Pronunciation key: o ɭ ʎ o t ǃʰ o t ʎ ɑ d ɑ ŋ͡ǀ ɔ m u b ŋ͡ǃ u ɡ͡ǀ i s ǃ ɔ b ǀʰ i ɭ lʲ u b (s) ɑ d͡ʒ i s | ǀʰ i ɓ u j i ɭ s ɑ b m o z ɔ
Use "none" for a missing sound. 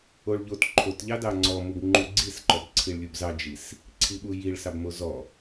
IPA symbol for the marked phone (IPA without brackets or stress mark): z